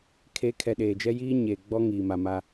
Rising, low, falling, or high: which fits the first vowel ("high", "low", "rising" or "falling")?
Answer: rising